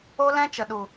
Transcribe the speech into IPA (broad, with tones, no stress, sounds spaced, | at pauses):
o˦ l ɛ̃˦ t͡ʃ ə˨ ɗ u˨